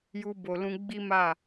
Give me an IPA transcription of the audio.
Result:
ju˧bo˨lũ˧ ɡ͡bi˦ma˦˨

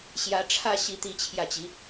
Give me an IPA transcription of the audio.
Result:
ɕjä˧˥ʈ͡ʂʰä˥˧ ɕi˥˧t̪i˥˧ t͡ɕʰjä˥˩t͡ɕi˧˥

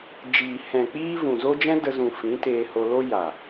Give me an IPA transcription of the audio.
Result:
d͡ʒiː˨ hɛ̃˨k͡piː˦vũ˨zo˦ d͡ʒɛ̃˦də˧zũ˨ fĩ˨˦teː˧ho˧lo˦ ja˨

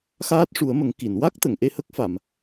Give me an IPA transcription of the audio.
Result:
xaː˦˥t̚ʂu˨˩˦ə̯mə˨˩˦ŋ ki˨˩˨nwa˦˥k̚t̪ə˨˩˨ŋ ʔe˧hə˦˥k̚fa˨˩˨m

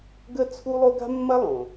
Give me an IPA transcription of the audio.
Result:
ɡə˥t͡sʰu˥lˠo˥ ɡa̤˥mːɐ˥lˠõ˩

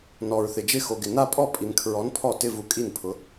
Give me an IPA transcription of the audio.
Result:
nɔ˨ɹθɪ˨ d͡ʒɪ˥˩xo˨ ɡɪ˨na˥˧pʼɔ˥˩ pʼi˨nkʰɹɔ˨˥n pʰɔ˥˩tɪ˥˧vu˨ kʼi˥˩npʰʊ˨˥

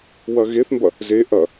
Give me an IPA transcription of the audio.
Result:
wɐɣeθmbɐ | ze ʔɐ

